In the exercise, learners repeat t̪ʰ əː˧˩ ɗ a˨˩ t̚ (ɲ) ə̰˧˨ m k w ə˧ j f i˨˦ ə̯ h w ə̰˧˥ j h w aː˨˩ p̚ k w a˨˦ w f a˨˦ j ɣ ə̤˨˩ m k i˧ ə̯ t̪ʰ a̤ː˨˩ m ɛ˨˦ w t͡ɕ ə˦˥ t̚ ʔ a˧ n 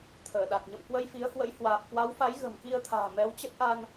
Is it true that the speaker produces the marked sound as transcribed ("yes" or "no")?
yes